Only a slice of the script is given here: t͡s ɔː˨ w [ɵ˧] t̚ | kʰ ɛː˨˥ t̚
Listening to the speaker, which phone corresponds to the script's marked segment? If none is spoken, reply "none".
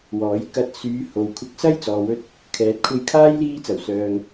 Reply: ɵ˧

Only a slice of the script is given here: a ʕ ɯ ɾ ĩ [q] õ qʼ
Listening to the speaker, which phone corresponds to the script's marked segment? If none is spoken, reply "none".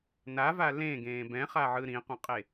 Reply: q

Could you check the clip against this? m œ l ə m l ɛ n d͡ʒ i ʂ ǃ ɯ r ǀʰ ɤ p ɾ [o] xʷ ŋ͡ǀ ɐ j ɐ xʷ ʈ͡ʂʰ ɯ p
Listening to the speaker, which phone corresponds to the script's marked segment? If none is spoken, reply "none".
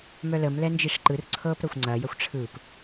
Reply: ɤ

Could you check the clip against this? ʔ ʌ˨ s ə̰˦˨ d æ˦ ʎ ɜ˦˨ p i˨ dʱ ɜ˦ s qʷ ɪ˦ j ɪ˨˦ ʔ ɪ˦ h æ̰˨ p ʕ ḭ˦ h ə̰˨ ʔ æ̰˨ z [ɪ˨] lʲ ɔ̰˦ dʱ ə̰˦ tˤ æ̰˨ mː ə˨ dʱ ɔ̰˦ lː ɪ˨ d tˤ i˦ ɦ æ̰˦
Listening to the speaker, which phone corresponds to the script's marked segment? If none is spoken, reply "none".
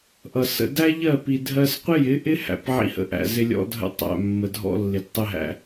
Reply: ɪ˦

